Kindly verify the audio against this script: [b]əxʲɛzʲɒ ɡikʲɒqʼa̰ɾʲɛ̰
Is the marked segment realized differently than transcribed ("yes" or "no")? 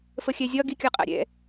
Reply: yes